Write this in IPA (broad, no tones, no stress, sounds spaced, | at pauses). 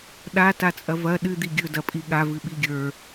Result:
ɗ a t a t͡sʼ ɐ v ɐ ɗ ɨ d̪ i ɡʲ ɵ d ɐ pʼ i ɠ a v ɨ ɓ i ɡʲ ə˞